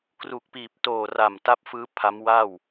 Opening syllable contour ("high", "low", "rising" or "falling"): low